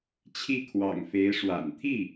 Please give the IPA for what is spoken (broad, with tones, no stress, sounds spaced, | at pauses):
t͡ɕʰ i˥˩ kʰ w ɑ̰˨˩ ŋ f e˧˥ ɪ̯ ʂ w a̰˨˩ n t̪ʰ i˥˩